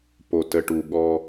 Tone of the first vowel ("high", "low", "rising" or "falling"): low